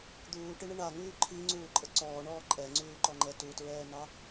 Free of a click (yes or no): no